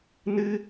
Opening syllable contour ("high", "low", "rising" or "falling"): high